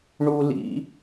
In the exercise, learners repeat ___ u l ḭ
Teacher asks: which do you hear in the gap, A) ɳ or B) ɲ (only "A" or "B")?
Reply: A